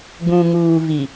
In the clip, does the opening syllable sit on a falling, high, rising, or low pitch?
low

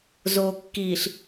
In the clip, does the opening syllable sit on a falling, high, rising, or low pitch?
low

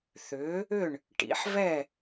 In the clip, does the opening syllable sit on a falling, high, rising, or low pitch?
rising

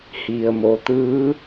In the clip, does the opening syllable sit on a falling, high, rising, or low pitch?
low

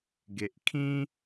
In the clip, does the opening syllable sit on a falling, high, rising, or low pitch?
low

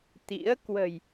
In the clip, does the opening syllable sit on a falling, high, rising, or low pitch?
rising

